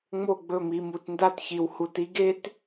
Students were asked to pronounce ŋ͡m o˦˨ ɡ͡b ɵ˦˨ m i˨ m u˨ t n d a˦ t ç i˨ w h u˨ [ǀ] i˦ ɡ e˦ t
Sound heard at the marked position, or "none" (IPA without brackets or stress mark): t